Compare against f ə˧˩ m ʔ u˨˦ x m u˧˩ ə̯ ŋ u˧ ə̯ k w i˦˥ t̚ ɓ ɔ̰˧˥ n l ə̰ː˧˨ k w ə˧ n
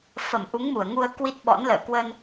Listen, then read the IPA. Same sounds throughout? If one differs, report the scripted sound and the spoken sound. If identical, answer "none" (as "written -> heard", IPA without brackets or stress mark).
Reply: x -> ŋ